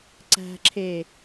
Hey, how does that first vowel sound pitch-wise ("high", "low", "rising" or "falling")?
low